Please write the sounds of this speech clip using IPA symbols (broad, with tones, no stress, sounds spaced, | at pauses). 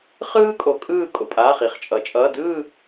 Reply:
χ ɯː˥ kʼ o˨˦ kʼ ɯː˥˧ kʼ o̰˥˧ pʼ aː˧˥˧ χ i˨˦ χ t͡ʃʼ ʌ˨˩˦ t͡ʃʼ ʌː˧˥˧ d ɯː˥˧